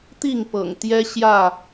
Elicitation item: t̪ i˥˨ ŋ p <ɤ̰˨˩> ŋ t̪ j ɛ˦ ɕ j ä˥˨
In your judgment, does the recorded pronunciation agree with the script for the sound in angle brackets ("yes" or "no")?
yes